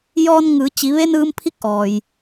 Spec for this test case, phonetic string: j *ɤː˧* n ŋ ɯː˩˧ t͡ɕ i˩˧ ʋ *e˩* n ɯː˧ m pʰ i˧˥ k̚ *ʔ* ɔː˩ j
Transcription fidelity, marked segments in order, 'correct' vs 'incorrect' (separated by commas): incorrect, incorrect, correct